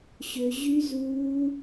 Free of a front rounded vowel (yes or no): no